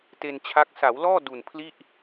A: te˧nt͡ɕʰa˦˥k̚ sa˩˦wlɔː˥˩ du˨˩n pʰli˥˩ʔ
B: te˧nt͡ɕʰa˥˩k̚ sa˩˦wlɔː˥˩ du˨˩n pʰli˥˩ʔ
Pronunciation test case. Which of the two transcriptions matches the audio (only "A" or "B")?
A